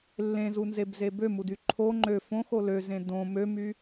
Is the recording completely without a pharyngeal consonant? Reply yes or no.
yes